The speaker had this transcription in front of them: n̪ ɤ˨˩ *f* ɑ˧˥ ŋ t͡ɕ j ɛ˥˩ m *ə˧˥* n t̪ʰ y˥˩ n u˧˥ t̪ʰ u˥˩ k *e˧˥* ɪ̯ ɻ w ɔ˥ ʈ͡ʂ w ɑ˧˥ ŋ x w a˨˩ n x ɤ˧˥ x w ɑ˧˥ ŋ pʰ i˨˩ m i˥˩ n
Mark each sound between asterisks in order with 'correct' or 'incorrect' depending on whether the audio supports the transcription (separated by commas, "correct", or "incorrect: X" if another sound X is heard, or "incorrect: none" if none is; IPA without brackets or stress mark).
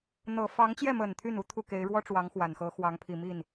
correct, incorrect: ə˨˩, correct